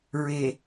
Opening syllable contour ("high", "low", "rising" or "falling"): low